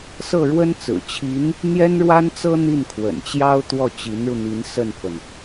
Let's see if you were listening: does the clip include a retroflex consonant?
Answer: yes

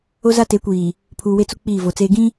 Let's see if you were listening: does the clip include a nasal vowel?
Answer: yes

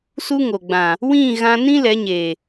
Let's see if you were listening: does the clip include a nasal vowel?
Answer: yes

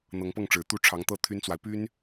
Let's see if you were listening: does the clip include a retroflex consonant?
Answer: yes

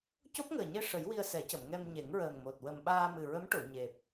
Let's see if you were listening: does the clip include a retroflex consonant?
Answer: yes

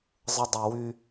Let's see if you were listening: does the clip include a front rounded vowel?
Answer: yes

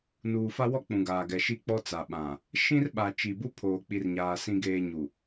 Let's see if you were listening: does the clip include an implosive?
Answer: yes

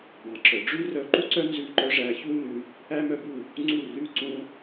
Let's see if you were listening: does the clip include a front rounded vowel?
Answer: yes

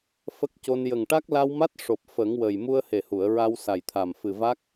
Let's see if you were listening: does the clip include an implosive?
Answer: no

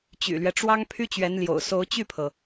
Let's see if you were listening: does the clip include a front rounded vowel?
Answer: yes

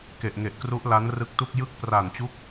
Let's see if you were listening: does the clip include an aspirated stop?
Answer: no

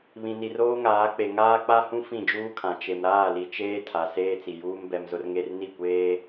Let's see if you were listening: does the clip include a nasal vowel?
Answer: yes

